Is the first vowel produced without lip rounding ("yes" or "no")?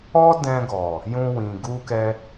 no